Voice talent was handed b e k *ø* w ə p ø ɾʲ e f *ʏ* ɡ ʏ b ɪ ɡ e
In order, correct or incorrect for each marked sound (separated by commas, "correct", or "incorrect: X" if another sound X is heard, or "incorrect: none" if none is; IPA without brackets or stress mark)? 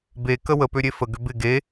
incorrect: ə, incorrect: ə